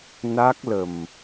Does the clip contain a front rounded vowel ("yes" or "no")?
no